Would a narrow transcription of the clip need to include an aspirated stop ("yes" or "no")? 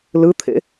yes